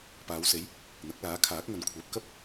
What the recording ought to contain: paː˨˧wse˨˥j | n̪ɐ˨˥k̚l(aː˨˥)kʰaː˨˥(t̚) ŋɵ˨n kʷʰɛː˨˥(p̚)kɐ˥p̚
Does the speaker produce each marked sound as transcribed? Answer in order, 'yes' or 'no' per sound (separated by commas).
yes, no, yes